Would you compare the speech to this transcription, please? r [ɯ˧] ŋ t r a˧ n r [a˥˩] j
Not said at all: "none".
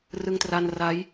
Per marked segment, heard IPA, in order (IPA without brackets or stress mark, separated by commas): ɯ˧, a˦˥